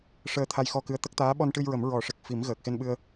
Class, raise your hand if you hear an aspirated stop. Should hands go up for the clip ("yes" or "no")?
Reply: yes